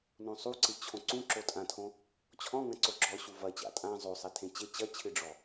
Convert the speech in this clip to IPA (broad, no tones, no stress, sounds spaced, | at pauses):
n õ sˤ u ǀ ɨ t͡ɕʰ õ ǀ ũ ǁ o tʼ ã tʰ õ | t͡ɕʰ ɔ̃ ŋ ɐ̃ ǀ o ɡ͡ǁ ɔ ɕ u v ɐ t͡ɕ a̰ tʼ ã zˤ o sˤ e tʰ ẽ t͡ɕ e t͡ɕ ɐ t͡ɕʰ ɨ ɖ͡ʐ ɔ